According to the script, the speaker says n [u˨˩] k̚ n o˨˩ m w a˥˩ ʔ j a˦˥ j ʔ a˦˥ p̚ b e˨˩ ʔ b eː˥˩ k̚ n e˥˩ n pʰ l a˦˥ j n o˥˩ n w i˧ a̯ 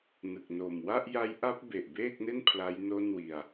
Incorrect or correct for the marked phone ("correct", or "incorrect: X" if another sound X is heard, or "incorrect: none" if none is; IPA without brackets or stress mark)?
incorrect: ɯ˨˩